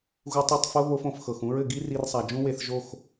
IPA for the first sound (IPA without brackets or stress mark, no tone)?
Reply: ɣ